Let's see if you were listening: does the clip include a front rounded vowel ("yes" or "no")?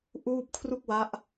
no